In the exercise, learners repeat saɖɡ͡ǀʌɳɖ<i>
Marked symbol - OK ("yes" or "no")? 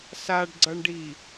yes